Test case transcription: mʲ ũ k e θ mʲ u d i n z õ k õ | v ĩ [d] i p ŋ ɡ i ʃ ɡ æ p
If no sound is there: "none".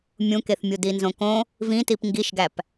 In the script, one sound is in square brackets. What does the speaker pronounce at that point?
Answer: t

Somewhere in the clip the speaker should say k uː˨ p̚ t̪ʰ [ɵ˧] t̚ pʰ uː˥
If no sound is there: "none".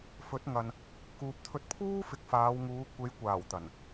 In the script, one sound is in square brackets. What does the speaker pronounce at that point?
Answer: ɵ˧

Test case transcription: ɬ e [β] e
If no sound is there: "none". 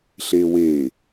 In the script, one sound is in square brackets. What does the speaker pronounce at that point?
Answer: w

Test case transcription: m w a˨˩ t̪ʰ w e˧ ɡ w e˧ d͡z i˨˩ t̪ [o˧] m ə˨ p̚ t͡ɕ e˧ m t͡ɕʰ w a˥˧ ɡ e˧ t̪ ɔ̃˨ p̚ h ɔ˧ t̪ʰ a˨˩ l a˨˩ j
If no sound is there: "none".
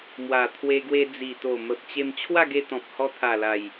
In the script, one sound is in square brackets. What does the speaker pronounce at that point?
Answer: o˨˩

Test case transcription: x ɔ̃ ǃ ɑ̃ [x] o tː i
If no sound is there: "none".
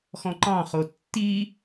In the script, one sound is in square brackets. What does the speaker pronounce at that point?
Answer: χ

